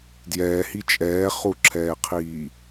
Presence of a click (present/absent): present